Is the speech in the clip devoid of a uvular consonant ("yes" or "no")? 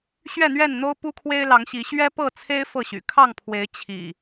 yes